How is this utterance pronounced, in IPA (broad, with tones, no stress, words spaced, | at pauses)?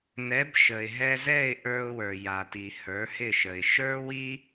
nɛ˩˥b ʃə˩ɪ̯ɦɛ˧zɛ˥˩ɪ̯ ʔə˞˧ʊ̯wə˞˩ja˩ti˩ hə˞˩˥hɪ˥˩ʃə˩ɪ̯ ʃə˞˥wi˥